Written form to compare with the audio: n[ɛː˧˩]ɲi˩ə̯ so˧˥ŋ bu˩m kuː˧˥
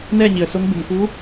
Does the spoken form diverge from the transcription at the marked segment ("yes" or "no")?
yes